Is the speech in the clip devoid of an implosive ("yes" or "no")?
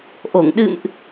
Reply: no